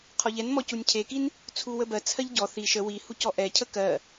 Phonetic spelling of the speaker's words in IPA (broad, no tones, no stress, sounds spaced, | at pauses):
qʰ ɔ ʎ ɛ n m ɔ c u nʲ cʰ e k i n | t͡sʰ u w ə b ɜ t͡sʰ ɜ ʎ ɟ ɔ θ i ʃ ə w i h u c ɔ ʔ ɛ cʰ ə k ɜ